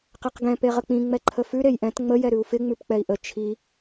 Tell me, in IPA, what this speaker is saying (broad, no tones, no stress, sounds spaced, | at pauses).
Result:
q ɛ q ɡ ɛ̃ p e ʁ ə k͡p ĩ ŋ͡m ɛ ǃʰ ə f ʉ ɾ e j ʔ ɛ̃ t ŋ͡m ə j ɛ ɾ ʉ u̯ f ɪ ŋ͡m ʉ p k͡p ɛ i̯ ʔ ə t͡ʃʰ i